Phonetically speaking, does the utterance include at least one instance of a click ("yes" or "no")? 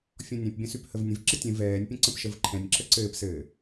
yes